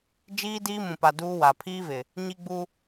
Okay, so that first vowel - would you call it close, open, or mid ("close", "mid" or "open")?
close